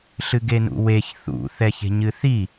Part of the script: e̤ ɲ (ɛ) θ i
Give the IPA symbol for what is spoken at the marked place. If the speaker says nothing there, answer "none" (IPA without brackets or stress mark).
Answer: ɨ